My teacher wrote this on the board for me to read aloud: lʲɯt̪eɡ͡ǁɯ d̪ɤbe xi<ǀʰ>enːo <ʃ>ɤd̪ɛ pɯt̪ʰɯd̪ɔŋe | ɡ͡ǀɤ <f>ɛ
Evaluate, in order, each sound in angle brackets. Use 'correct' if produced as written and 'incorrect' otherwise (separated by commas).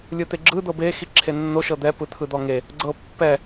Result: incorrect, correct, incorrect